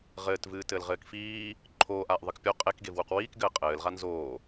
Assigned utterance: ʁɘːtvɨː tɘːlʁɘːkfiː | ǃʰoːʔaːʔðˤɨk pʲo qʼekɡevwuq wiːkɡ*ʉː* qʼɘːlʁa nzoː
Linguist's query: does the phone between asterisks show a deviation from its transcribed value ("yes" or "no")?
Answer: yes